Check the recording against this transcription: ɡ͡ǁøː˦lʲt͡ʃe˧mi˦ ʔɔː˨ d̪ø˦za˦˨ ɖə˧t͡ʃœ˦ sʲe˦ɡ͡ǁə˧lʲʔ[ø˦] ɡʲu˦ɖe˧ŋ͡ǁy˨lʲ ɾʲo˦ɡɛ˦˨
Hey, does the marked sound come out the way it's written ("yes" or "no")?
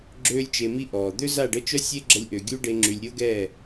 no